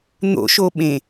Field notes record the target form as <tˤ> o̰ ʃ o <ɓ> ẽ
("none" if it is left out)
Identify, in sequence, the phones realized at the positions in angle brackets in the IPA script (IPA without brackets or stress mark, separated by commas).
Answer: n̪, ɓ